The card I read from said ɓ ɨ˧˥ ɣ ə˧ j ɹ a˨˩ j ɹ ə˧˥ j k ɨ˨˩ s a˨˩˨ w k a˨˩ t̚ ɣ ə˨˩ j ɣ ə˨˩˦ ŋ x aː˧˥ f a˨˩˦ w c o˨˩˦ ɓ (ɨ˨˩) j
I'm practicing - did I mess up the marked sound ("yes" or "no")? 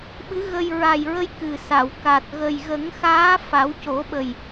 yes